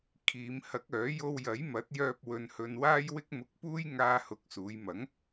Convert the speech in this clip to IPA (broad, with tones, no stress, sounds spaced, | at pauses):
kʰ iː˨˧ m h ɐ˨˥ k̚ œː˨˥ j o˧ w j ɐ˨˥ j m ɐ˨˥ t̚ j œː˧ p̚ w ɵ˧ n h ɵ˧ n w aː˥ j w ɪ˥ k̚ m ʊ˧ k̚ p uː˥ j ŋ aː˧ h ʊ˨˥ k̚ s uː˨˧ j m ɐ˨˥ ŋ